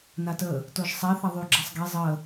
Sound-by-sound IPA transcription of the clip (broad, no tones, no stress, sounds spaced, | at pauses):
n a t ə | t o ʒ sˤ ɛ θ a ðˤ y ɡ͡ǁ a sˤ ɡ ɛ zˤ ə